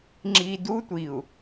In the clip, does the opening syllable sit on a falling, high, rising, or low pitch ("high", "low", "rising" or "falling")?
low